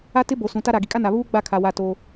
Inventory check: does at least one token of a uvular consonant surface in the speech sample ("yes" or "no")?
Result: no